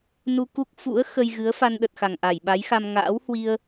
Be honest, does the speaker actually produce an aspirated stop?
no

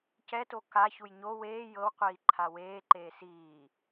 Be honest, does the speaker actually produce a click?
yes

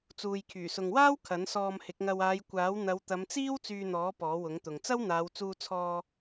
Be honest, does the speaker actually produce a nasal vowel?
no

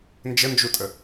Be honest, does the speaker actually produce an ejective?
yes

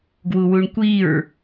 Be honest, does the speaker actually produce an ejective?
no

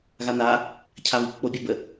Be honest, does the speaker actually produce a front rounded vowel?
no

